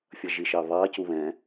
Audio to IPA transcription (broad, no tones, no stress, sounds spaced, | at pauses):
fʲ ʌ ʒ i ʃ ɑ β ɑ c u β ɛ̃